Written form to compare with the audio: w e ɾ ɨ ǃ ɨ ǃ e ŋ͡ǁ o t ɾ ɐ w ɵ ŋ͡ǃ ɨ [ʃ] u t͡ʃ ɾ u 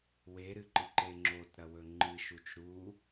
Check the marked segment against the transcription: correct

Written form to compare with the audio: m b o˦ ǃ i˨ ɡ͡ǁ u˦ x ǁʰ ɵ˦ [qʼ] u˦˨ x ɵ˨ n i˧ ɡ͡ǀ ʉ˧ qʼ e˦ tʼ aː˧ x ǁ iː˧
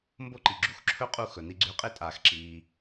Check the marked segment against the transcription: correct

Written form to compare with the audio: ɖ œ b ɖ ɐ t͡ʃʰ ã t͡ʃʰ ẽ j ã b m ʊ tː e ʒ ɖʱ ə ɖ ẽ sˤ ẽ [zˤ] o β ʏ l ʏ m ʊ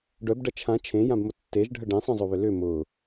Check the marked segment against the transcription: correct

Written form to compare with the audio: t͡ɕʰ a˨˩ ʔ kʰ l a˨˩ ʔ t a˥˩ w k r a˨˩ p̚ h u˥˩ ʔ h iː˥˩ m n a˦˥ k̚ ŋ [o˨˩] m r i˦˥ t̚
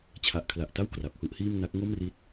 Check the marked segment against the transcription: incorrect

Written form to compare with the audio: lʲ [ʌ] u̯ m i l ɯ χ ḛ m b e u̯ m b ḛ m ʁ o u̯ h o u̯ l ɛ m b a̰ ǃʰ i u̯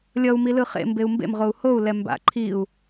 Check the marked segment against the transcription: correct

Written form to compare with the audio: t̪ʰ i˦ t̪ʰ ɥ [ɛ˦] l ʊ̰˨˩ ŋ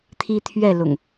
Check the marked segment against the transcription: incorrect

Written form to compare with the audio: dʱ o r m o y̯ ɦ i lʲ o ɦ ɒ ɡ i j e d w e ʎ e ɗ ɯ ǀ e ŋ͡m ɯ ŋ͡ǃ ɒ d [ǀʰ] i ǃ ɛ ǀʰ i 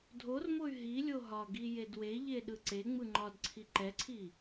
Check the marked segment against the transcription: correct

